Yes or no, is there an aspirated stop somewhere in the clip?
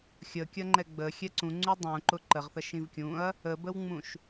no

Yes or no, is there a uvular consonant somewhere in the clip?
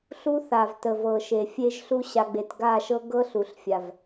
no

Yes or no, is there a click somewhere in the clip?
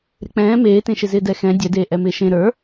no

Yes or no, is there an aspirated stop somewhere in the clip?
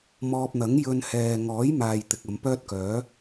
no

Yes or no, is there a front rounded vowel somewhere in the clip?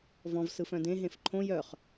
yes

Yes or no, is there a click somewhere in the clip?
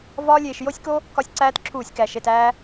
yes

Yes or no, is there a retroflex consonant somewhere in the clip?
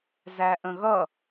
no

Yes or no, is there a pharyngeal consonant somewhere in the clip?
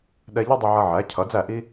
yes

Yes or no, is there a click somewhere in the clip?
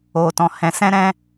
no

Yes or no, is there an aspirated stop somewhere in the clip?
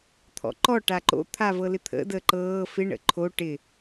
yes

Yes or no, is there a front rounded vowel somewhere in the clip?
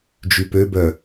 yes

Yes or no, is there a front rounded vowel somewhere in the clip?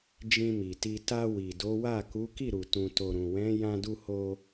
no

